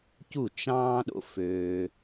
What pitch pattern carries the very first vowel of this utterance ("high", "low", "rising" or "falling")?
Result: falling